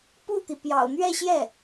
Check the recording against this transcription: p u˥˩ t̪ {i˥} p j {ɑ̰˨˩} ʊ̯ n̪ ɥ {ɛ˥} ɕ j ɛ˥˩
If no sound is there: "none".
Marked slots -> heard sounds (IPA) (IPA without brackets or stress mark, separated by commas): i˩, ɑ̰˨˩, ɛ˥˧